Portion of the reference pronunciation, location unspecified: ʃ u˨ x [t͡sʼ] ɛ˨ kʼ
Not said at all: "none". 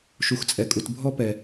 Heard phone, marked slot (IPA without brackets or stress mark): t͡sʼ